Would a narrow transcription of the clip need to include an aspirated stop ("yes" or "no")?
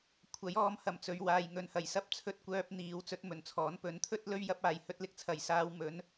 yes